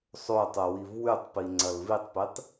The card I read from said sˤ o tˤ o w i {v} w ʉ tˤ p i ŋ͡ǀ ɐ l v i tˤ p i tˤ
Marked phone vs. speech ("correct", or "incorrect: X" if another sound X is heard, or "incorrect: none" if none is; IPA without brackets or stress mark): correct